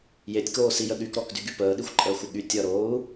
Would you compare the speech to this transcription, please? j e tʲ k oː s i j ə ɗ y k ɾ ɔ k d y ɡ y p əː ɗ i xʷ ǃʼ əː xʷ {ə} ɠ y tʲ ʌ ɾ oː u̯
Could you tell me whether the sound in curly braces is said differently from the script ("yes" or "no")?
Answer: no